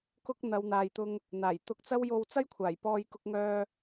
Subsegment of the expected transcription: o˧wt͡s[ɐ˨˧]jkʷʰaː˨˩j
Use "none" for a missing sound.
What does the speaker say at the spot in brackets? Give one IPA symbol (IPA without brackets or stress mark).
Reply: ɐ˥